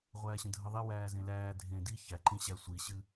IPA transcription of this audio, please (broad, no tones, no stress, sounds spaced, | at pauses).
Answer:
ʁʷ æː ɕ ə̃ dʱ ə ðˤ e w æː z ẽ l æː dʱ ẽ d i ç æ ǃ ĩ ɕ æ sʷ i ɕ ɨ